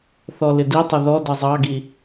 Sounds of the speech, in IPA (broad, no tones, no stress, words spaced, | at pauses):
θɔlɪditˤə ðɔdʌ zˤɑɡi